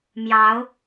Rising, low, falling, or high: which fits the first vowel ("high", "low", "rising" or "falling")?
rising